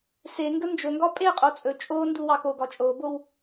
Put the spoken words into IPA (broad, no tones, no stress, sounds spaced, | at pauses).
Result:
s e ŋ ɡ ə n d͡ʒ ɵ ŋ ɡ ɒ pʼ e qʼ o t͡sʼ ɵ t͡ʃʼ o n d u w ɑ k o ɡ ɒ t͡ʃʼ o b o w